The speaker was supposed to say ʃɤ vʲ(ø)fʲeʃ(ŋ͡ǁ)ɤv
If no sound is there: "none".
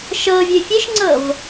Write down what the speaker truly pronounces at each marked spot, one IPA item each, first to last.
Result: ø, ŋ͡ǀ

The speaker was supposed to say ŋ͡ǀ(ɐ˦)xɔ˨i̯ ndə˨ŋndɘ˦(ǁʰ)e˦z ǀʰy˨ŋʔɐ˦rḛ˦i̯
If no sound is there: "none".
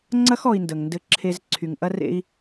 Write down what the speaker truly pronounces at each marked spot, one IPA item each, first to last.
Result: ɐ˦, ǁʰ

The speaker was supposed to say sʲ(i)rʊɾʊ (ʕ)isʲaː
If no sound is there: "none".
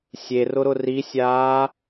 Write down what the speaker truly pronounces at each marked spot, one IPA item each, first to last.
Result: e, r

